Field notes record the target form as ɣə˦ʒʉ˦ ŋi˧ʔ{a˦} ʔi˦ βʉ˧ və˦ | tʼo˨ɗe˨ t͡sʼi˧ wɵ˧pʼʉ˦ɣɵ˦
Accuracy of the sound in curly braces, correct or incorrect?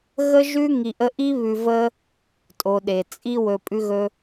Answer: incorrect: ə˦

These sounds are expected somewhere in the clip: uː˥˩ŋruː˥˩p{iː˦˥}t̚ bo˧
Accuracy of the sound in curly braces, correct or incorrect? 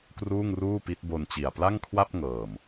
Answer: incorrect: i˦˥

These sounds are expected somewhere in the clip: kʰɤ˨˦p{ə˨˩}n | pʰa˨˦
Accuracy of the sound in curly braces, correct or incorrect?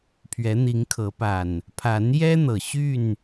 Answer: incorrect: a˨˩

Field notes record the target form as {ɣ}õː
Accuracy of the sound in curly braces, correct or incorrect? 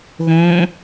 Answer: correct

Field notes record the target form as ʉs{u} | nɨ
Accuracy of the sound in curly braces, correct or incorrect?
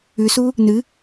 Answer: correct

